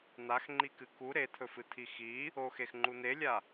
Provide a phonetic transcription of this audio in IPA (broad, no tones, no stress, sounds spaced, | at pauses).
n̪ a x ŋ͡ǃ i k ɨ k u ɾ e t̪ʰ ɵ f ɨ t̪ʰ i x i | o x e x ŋ͡ǃ u n̪ e lʲ a